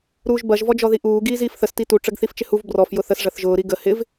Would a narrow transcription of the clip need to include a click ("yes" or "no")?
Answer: no